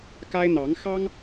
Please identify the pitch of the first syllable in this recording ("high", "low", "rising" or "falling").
high